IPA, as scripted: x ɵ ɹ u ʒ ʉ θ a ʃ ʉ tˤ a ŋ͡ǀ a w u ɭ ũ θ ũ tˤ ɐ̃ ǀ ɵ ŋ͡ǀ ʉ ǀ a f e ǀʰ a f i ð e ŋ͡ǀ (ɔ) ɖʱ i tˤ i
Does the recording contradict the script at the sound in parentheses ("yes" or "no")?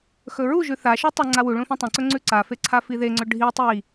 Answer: yes